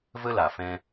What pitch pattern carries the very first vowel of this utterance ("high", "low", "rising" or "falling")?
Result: high